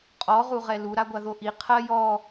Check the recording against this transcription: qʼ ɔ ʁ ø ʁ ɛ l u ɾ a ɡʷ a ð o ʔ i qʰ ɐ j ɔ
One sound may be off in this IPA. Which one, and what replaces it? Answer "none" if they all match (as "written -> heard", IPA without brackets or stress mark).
ø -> u